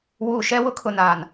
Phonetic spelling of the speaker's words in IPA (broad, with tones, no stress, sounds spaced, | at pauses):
w uː˨ ʃ ɛ˦ w ʊ˦ kʰ ʊ˨ n aː˨ n